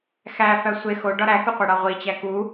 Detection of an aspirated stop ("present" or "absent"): absent